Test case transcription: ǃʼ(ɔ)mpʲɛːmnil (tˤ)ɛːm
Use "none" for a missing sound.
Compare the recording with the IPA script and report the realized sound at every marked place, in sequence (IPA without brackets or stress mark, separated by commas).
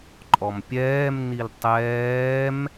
ɔ, tˤ